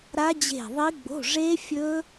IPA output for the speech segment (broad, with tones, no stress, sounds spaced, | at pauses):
ɾ a˦˥ d͡ʑ e̤˦˨ ðˤ i˦˥ ɡ͡b o̤˧˥˧ ʐ e˦˥ fʲ ɵ˦˥